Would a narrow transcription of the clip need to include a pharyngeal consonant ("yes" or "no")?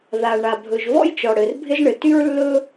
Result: no